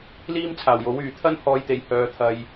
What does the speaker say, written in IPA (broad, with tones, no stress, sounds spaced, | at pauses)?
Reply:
l iː˥ m t͡sʰ aː˨˩ w j o˨˥ w yː˨ t̪ʰ ɐ˥ n h ɔː˧ j t̪ e˨ j h œː˨˧ t̪ʰ ɐ˧ j